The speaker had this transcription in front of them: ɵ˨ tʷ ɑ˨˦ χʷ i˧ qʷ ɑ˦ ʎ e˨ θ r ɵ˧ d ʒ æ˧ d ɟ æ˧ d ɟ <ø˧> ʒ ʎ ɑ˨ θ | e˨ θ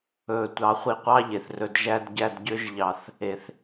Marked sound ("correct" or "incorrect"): correct